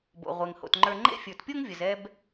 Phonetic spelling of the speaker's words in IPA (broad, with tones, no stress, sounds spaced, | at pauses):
b o̰˩ ʁʷ e˩ ŋ h o̰˩ t ŋ͡ǃ ə˞˨ ŋ͡ǃ ḛ˦ fʲ ə˞˨ t pʲ o˥ ŋ vʲ ə˨ z ɛ˥ b